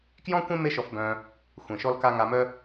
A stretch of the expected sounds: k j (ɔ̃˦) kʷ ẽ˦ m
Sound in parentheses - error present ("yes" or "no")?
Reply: no